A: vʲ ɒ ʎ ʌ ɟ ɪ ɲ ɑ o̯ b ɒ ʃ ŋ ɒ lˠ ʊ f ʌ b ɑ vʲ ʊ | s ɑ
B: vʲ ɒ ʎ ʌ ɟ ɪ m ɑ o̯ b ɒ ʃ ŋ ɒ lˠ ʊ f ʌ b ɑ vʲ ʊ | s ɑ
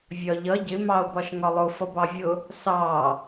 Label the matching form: B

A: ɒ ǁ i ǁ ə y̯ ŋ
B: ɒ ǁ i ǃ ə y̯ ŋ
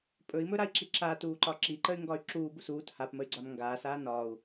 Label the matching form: B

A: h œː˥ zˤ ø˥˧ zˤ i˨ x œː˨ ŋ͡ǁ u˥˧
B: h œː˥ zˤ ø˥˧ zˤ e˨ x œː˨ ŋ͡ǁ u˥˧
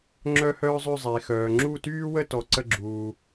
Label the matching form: B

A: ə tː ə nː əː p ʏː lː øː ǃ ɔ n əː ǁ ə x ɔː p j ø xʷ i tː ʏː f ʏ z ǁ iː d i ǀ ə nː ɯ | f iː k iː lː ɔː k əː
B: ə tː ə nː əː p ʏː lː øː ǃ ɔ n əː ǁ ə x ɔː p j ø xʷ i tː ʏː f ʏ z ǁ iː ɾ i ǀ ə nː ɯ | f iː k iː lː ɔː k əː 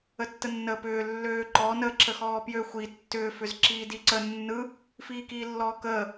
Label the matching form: A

